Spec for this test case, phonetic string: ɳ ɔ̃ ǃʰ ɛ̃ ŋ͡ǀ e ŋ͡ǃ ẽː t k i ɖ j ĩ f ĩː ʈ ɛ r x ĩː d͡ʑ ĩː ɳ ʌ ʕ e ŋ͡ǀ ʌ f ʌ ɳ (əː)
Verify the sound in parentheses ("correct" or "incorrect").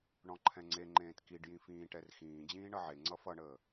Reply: correct